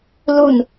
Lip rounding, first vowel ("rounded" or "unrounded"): rounded